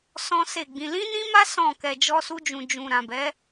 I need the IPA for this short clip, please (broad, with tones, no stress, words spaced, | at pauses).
sɔ̃˦se˦˨ɡ͡bĩ˧ lĩ˦nĩ˦ma˦ sɔ̃˦˨ kɛ˧d͡ʒɔ˦su˦d͡ʒũ˧ d͡ʒũ˧ ɾã˨bɛ˨˦